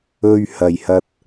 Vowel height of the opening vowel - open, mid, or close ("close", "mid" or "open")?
mid